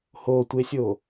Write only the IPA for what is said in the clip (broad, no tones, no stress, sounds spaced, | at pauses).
h o tʷ e sʲ o